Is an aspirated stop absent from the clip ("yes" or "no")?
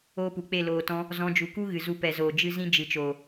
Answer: yes